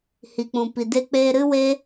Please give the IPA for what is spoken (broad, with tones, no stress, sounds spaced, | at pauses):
h i˨ k͡p ũ˨ p i˨ d e˧ k͡p eː˧ ɾ ɨ˦ w e˦